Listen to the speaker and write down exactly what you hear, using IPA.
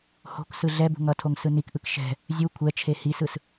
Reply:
h o̤ k s ɯ ɮ ɛ b ṳ ŋ ʌ tʰ o ŋ s ɯ n i k ʔ ɯ k ʃ ɛ̤ | zʲ u kʷʰ ɛ t͡ʃʰ e h i s ɯ s

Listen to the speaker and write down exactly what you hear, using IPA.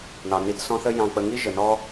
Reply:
n ɑ˩ n i˨ t s ɔ̃˦ θ ə˦ j ɑ̃˨ k͡p ə˨ ŋ i˥ ʒ ə˩ n ɔ˥

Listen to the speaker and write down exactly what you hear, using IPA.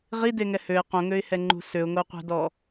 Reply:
ʁ i d e ŋ ɛ h ø ɪ̯ q õ ŋ ø ɪ̯ h ɛ ŋ͡ǃ ṳ s ø ʊ̯ ŋ o qʷ ɛ̤ d ɔ

